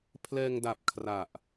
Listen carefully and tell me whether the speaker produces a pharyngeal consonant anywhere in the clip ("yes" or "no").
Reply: no